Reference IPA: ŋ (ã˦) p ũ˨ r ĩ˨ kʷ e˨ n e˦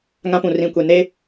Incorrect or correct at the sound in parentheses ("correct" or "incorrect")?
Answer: correct